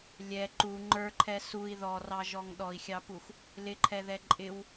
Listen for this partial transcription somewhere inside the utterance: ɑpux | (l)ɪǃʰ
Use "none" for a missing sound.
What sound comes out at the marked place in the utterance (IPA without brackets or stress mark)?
l